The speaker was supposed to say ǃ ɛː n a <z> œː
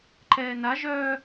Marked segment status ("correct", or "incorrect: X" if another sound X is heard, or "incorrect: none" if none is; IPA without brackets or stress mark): incorrect: ʒ